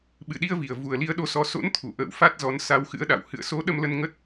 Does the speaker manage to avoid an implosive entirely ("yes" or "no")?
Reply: no